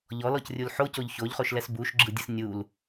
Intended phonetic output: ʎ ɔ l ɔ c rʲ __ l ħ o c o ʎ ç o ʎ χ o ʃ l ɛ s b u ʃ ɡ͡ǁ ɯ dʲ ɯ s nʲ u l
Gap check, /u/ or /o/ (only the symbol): u